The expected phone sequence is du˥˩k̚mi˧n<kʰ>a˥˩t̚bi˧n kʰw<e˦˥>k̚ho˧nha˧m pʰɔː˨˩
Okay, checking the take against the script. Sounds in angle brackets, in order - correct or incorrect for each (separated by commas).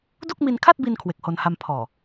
correct, incorrect